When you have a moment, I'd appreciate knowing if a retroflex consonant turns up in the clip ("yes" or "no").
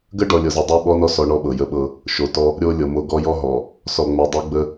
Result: yes